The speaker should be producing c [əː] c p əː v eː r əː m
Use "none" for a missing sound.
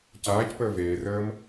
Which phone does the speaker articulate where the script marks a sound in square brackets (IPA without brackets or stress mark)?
aː